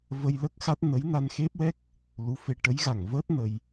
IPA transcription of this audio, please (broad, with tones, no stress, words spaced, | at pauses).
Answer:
və˧jlə˦˥k̚xa˦˥t̚nə˧˥j na˧nxe˦˥p̚wɛ˦˥k̚ | lu˧˥fe˧ ʈə˧˥jɣa˨˩ŋvəː˦˥t̚ nə˧j